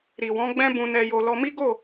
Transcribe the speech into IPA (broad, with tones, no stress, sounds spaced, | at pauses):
ɾ i˨ w ɔ̃˨˦ ɡ͡b ɛ̃˦ b ũ˧ n ɛ˧ j o˧ l ɔ˧ m i˦ ɡ o˦˨